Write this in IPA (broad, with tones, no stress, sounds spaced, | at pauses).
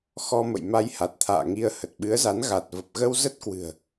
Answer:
x ɔ˧ m ə̰˧˨ j m a˧ j h a˨˩ t̚ t̪ʰ a̰ː˧˨ ŋ i˧ ə̯ h ə˨˩ t̚ ɓ ɨ˨˦ ə̯ z a˨˦ n ɣ a˨˩ t̚ v ə˨˩ p̚ ɣ ə˧ w z ə˦˥ t̚ k w ɨ̤˨˩ ə̯